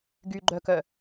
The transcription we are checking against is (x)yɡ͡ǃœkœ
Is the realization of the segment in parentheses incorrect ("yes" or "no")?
yes